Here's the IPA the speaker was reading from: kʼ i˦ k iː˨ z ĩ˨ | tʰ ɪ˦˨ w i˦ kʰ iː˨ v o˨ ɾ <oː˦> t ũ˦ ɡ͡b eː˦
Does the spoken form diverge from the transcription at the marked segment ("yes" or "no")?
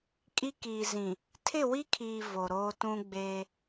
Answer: no